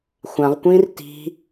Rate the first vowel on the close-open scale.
open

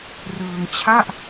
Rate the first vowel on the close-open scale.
close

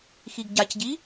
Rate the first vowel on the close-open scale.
close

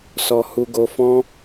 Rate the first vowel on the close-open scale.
mid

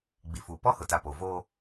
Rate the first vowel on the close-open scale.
close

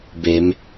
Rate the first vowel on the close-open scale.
mid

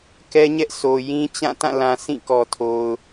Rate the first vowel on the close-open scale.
mid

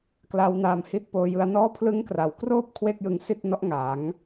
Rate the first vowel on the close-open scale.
open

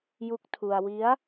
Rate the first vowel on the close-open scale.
close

